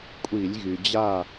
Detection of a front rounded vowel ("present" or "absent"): present